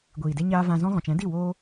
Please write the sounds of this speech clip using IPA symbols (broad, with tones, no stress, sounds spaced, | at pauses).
ɡʷ iː˨ d e˧ ɲ aː˧ v ã˧ z ɔ̃˦ ɣ ɔ̃˨ t͡ʃ ɛ̃˨˦ d i˦˨ w oː˦